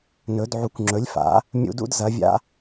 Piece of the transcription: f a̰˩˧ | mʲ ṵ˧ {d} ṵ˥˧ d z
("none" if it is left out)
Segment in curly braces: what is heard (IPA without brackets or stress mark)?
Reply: d